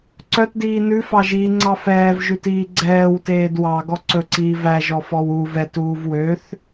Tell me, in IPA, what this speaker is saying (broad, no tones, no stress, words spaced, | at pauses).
ǀœtdiː nʉfɑʒiːŋ͡ǀɑ fɛːvʒʉtiː ɡ͡ǀɛːwteːd wɑɡɔ ǀɵǀiː væʒɔfɔw u vɛtuːv wøθ